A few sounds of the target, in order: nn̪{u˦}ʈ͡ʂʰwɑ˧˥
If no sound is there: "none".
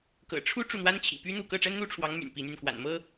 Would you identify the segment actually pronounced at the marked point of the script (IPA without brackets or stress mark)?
u˥